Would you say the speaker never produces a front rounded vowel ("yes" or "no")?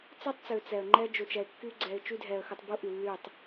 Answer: no